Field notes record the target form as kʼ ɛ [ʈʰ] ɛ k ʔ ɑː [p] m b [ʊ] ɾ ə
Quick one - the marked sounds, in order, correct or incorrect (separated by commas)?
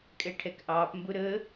correct, correct, correct